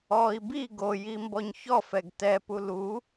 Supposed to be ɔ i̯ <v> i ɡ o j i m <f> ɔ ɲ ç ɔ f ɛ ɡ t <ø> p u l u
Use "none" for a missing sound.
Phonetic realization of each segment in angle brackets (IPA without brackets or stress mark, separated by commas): b, b, ɛ